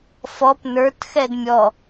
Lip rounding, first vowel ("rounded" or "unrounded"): rounded